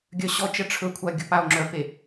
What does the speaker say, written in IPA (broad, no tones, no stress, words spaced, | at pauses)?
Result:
ɡʲœɕɔt͡ʃɜ ʈ͡ʂʰɵkʷʰa ɡʲɵpao̯ŋ͡ǁœpe